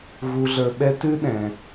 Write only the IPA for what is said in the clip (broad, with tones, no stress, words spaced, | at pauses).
ɣu˧ɮə˞˧ɓɛ˦ tʉ˦ ɗɛ̃˧